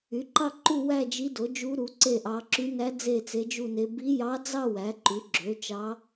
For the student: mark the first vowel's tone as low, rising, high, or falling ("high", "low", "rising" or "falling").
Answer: rising